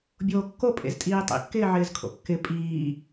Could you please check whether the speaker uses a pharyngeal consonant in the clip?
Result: yes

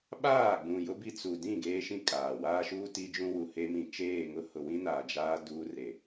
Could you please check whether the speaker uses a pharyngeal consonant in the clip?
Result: no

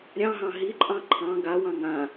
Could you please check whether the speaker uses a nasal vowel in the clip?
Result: yes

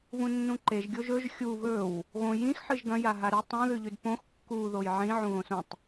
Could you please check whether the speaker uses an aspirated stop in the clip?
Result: no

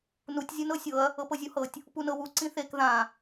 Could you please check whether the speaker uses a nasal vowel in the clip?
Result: yes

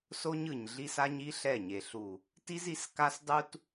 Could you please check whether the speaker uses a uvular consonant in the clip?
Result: no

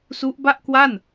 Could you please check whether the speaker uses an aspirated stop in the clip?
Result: no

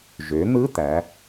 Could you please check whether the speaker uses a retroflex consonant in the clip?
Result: no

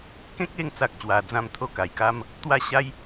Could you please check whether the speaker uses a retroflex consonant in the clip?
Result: no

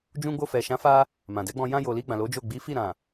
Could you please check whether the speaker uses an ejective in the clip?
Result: no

